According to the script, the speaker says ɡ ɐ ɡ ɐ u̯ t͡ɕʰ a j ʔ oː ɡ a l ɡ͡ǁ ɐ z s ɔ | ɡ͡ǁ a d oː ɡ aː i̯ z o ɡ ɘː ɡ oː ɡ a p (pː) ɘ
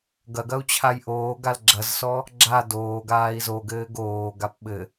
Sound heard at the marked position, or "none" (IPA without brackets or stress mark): ɓ